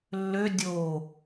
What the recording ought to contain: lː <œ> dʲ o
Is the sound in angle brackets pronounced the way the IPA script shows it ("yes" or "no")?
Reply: no